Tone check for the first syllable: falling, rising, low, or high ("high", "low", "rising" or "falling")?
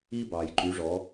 high